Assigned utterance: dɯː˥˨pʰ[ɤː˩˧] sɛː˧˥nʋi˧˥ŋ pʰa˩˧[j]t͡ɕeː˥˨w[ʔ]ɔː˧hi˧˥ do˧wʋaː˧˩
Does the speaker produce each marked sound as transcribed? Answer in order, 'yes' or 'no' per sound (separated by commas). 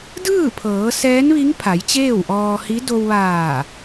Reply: yes, yes, yes